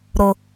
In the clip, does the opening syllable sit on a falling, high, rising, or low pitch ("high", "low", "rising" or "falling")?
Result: low